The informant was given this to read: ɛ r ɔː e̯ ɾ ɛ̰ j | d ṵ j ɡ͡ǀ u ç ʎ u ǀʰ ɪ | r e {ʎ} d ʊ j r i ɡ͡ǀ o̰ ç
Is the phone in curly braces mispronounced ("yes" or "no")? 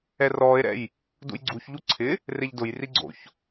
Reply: no